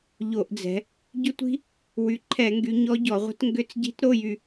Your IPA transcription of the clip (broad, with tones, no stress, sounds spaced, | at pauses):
ʎ o˧˩˧ ʔ d͡z ɛ̤˩˧ | ɟ ʏ˦˥ tʷ i̤˦˥ | w y˩˧ ǃʰ ɛ˧˩˧ ŋ ɡ y˩˧ ɲ ɔ˦˥ ɟ ɔ˧˩˧ ʁʷ ə̤˦˥ t ŋ ɡ ʏ˧˥˧ t͡s ɟ i̤˦˥ t ɾ o˧˥˧ j y˦˨